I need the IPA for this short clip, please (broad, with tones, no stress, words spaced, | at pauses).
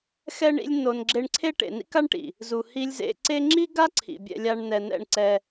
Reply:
xɛ˦ɳḭ˦lʲ no˧n ɡ͡ǁe˧ɳǀʰe˦ ʈḛ˨nḭ˦ka˦ɳ ʈḭ˨ | zu˨ hi˧lʲzḛ˧ǀe˦ ŋ͡ǁi˦ɡa˦ ǀʰḭ˨bʲɛ̰˧lʲa˧ɳ n̪ɛ˨ n̪ɛ̰˦˨ɳ ǀɛ˧